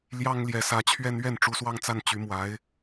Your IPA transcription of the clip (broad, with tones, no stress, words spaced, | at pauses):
ljɑ˥ŋljɛ˧˥sä˧˥t͡ɕʰɥɛ˥n ɥɛ˥˩nʈ͡ʂu˧˥swɑ˥˧ŋt͡sa˥˩n t͡ɕy˧˥mwa˧˥ɪ̯